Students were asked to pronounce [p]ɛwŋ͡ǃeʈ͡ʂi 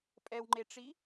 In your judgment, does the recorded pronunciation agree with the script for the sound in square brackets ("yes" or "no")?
no